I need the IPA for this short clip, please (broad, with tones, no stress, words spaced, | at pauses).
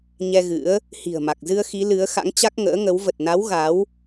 ɲɛ˧ɣɨ̰˧˥ə̯ | hi̤˨˩ə̯ma˨˩k̚zɨ˧ə̯ xi˨˦lɨ˨˦ə̯xa̰˧˥ŋ t͡ɕa˦˥k̚ŋə̰ː˧˥ŋə˨˦w və˨˩t̚na˨˦w ɣa˨˦w